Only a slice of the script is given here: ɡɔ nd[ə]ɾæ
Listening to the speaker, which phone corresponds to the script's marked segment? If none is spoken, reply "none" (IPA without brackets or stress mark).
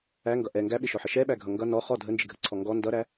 ʌ